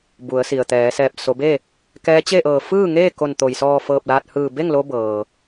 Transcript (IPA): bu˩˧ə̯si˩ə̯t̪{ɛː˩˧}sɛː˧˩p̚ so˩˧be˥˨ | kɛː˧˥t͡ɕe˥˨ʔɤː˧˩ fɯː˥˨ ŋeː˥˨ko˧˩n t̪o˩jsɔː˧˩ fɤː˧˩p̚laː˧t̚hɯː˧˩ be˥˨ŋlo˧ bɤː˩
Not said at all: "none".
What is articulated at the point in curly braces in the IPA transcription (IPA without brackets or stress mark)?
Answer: ɛː˩˧